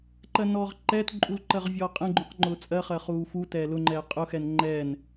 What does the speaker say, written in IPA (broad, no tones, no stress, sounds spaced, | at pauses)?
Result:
ǃ ɜ n ɔː ʁ ǃ ɛː t ǃʼ u l ǃ ɜ ʁ vʲ ɔː qʼ ɛ̃ ɡ͡ǃ ũ q ŋ͡ǃ ʊː t͡sʼ ɜ χ ɜ χ uː f u t ɛː l ʊ ŋ͡ǃ ɛː qʼ ʊ x ɛ n ŋ͡ǃ ɛː n